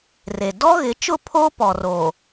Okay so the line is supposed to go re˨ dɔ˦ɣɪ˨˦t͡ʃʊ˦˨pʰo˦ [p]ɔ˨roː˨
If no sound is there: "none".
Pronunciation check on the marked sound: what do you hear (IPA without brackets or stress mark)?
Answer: p